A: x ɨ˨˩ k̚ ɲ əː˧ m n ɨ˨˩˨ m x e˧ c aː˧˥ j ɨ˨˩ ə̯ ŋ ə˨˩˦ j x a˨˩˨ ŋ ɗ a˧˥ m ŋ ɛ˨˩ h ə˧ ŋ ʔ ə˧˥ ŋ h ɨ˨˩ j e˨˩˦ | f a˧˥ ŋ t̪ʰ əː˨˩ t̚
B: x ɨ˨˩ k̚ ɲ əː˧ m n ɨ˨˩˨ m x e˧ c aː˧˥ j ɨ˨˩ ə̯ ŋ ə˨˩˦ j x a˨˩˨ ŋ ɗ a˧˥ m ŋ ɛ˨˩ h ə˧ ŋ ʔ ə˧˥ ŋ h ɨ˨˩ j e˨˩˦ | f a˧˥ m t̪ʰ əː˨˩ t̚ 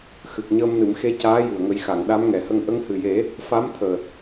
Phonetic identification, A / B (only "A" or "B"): B